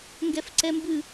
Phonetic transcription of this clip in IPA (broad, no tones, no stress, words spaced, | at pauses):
ŋɡɛfǀɛmbʉ